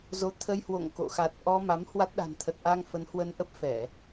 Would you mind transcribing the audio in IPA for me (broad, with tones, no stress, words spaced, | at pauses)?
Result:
zo˨˦t̪ʰə˧jhwo̰˧˨ŋ ko̰˧˨ xa˨˩t̚ʔɔ˧ ma˨˦mhwa˦˥t̚ ɗa̤˨˩nt̪ʰə˨˩t̚ʔa˧ŋ fə˨˦nhwə˧nʔə˦˥p̚ fɛ˧˩˨